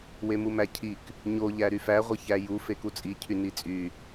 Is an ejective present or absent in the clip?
present